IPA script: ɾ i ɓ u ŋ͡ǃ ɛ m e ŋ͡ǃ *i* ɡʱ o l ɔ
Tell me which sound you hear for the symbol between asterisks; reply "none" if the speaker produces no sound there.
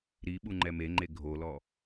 e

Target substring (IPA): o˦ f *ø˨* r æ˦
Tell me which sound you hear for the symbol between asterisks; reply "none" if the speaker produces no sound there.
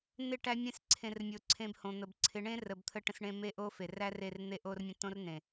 e˨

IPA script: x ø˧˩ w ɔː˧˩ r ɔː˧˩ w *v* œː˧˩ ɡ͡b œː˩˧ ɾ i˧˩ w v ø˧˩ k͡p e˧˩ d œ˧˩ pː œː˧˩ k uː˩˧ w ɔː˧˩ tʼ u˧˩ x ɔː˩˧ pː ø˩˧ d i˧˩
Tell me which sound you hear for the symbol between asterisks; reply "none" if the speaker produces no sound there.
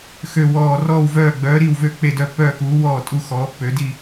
v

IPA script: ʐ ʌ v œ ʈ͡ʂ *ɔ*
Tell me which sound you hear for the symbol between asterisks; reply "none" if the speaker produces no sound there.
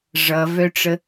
ə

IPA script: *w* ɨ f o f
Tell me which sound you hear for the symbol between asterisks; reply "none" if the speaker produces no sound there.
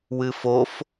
w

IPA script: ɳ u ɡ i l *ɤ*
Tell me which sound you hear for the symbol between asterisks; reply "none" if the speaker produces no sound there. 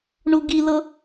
ɤ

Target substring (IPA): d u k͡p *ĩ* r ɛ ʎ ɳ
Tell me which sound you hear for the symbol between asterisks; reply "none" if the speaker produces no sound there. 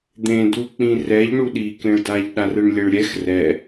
ĩ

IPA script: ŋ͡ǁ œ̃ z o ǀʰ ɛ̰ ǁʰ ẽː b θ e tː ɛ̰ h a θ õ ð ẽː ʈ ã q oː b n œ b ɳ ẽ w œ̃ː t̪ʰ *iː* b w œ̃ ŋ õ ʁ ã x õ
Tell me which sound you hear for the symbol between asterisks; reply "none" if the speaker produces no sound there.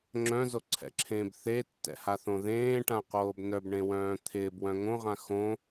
ɪː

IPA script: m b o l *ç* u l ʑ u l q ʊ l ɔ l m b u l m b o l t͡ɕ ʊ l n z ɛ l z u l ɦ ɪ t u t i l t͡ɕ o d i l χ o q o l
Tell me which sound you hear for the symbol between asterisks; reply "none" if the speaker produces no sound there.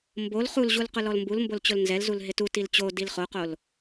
χ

